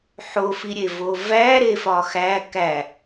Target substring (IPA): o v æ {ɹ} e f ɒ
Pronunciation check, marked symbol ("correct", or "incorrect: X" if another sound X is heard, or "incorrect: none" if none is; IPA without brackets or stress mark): incorrect: ɾ